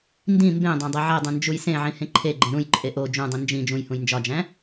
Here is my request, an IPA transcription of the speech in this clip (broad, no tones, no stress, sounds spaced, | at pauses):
n d ĩ m b ẽ dˤ æ̃ dˤ e ʕ e dˤ ũ n d͡ʒ u j s ẽ ʕ ĩ h ẽ ǃʰ e ɡ͡ǃ ẽ ɾ ũ j ǃʼ e ʔ o d͡ʒ ũ dˤ ĩ n d͡ʒ ĩ d͡ʒ ũ j h ũ j n d͡ʒ ɒ d͡ʒ æ̃